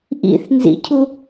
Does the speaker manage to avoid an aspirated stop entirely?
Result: no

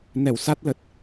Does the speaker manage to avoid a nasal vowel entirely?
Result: yes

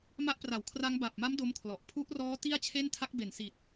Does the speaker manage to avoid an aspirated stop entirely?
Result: no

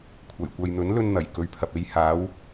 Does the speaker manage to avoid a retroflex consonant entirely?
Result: yes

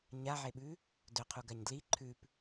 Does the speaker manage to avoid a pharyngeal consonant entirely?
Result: no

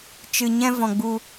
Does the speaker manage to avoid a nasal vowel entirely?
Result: no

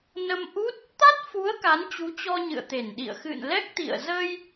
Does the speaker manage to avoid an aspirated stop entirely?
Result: yes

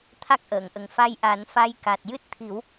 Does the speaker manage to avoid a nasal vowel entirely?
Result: yes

